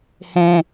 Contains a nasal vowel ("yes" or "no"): yes